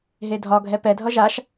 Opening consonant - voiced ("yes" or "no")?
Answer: yes